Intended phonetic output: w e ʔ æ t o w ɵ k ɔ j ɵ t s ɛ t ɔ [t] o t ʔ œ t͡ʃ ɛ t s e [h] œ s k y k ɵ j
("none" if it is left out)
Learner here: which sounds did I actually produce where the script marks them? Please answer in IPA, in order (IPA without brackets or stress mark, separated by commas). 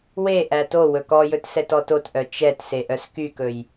t, ʔ